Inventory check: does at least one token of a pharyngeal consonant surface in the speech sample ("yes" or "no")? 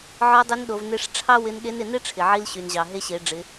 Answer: yes